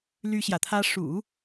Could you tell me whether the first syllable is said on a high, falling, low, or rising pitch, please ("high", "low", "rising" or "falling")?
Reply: high